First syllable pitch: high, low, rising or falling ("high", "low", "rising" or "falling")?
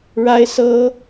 high